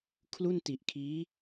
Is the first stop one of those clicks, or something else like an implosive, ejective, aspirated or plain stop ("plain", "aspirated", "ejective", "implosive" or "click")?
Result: aspirated